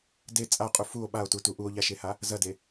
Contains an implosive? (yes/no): yes